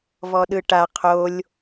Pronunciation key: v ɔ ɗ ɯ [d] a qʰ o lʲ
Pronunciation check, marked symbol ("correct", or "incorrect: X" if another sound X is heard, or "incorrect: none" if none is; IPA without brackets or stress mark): incorrect: ʈ